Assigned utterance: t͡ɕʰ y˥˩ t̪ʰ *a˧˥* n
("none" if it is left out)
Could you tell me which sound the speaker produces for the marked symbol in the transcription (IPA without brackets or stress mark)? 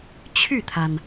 a˩